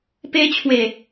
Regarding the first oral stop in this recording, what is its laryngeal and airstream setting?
plain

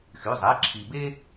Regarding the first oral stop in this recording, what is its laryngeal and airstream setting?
click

